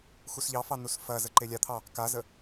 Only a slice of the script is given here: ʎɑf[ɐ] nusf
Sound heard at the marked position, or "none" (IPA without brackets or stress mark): ɑ